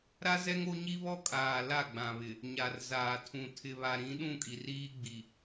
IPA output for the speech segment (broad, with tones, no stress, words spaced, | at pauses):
ɾa˦zɛ˦ŋ o˦ɲi˦βɔ˦kʼaː˨ la˦˨ɡ͡bã˨βɪ˨ | ɲa˨rzaː˨tʰũ˨ tʰɪ˨βa˨ɾĩ˨˦ ɗũ˦˨kʼi˨r iː˦ɡ͡bi˨